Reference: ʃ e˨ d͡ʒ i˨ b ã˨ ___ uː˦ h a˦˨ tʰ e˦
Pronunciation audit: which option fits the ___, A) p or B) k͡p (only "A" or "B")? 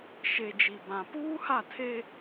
A